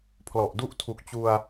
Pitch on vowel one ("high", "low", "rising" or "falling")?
low